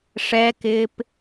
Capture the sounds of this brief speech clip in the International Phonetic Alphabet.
ʂɛkɪːp

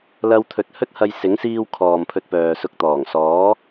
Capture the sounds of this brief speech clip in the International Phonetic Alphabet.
lɐ˧wt̪ʰɵ˨t̚hɵ˥t̚hɐ˧j sɪ˨˥ŋsiː˧wkʰɔː˨m pʰɵ˧t̚pœː˨sʊ˧k̚ t̪ɔː˨˩ŋsɔː˨˥

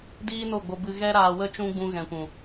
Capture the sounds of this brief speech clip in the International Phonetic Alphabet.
diː˦no˦˨ɡ͡bo˧ bɨ˧ ɣɛ˦ɾaː˧wə˦t͡ʃũ˦ ɡ͡bũ˧ɣɛ̃˨kʷũ˨

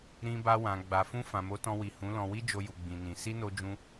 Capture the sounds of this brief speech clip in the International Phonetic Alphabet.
ɾĩ˧ba˧wã˨ ɡ͡ba˨fũ˧ fã˨mo˨˦tɔ̃˧wi˨ hũ˨˦lɔ̃˧ wi˦d͡ʒo˧ju˨ ɡ͡bĩ˨nĩ˨ si˧no˧d͡ʒũ˧

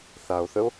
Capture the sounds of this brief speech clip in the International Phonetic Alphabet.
θao̯θəo̯

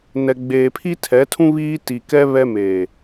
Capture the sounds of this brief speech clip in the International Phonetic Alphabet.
nɛ˨ɡ͡beː˨ pʰi˦tʰɛ˨˦tʰũ˦ βiː˦ ti˨kɛ˦ βɛ˦meː˨

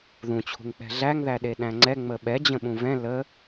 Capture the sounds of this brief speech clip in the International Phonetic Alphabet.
ðũt͡ɕʰṳŋk͡pɛ̤ ɮæŋðæɗeɗæ̃ ŋ͡ǀɛ ŋ͡məɓɛ d͡ʑə̃ɓũvɛ̃ lə

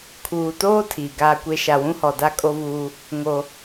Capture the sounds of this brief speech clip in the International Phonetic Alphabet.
kʰuː˨toː˦ tʰiː˨ɡaː˦kʷe˦ ʃa˨wũ˦hɔ˨ da˦kʼo˦vuː˦ | ŋo˦

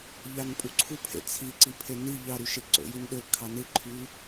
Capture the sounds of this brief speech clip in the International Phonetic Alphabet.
ʎɑnpʼuǀʰu pʰḛt͡sʰiǀi pʰeni ʎɑɾyʃe ǀo̰jinɗø kʰɑnɯǃʰy

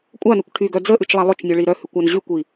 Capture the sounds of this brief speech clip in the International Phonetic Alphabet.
kʷʼanʉkʷ ʈʰyɡœ d͡zəʔʉt͡ʃlˠa lˠʊt͡ʃnʲʊɭi ɾœhʉkʷan ʑykʷi

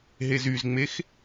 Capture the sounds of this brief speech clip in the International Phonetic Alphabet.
ɦezyzŋ͡mex

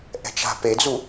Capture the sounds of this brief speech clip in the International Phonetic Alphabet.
ʔɛ̤t͡ʃa̤ped͡zu

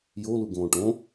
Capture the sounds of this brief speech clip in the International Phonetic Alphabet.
jo luɡõːʈõ

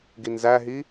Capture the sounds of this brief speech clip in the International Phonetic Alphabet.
ɡinzæɦi

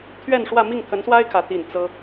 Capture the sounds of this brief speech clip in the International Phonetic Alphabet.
t̪ʰɥɛ˥˧nʂwä˥˧ mi˥˩ŋt̪ʰə˧˥nswa˥ɪ̯ kʰä˧˥ t̪i˥˩n t͡sɤ˥

